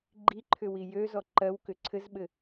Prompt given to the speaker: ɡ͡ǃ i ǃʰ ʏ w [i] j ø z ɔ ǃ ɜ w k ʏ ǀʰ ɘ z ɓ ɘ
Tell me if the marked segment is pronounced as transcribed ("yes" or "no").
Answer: yes